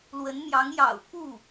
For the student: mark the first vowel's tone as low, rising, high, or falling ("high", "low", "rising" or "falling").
rising